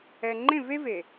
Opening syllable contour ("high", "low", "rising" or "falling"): low